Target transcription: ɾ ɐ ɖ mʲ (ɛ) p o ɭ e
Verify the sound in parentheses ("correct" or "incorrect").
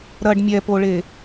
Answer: correct